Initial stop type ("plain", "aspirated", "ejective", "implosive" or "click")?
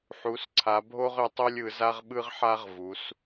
click